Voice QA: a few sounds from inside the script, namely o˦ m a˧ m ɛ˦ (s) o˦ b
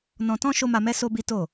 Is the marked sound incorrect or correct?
correct